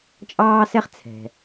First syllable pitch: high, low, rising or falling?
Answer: high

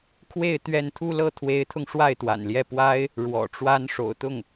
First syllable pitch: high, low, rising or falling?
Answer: falling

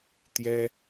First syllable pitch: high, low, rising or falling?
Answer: high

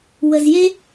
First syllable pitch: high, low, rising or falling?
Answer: low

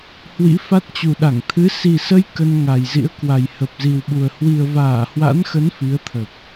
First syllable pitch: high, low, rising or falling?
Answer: rising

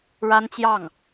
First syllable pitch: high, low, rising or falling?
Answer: high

